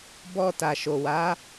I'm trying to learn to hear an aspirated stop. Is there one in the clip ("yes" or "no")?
no